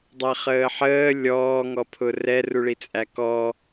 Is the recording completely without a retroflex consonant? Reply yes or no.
no